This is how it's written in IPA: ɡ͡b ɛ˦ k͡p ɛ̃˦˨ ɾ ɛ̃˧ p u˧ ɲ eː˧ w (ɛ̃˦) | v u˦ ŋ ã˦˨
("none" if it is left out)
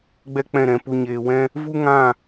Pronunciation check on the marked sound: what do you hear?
ɛ̃˦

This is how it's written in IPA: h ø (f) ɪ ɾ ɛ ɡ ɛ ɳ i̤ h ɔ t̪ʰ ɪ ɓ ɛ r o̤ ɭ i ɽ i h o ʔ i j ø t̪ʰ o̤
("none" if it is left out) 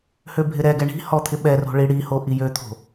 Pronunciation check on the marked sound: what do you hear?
bʱ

